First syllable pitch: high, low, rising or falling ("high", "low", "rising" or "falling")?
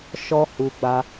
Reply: high